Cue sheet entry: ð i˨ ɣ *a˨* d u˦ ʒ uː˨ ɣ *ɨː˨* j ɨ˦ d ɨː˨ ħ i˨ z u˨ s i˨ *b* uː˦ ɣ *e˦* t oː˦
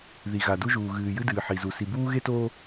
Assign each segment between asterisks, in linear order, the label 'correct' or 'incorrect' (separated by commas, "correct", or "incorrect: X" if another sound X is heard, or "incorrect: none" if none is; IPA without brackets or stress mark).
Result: correct, correct, correct, correct